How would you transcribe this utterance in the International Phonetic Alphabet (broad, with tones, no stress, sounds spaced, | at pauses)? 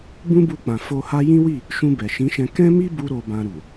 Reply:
b ũ˦ b u˧ k͡p ã˨ f o˧ h a˦ j ĩ˦ w i˦˨ | ʃ ũ˧ b ɛ˨ ʃ ĩ˨˦ ʃ ɛ̃˧ k ɛ̃˦ m i˦ b u˦ ɾ o˧ b ã˧ ɾ u˨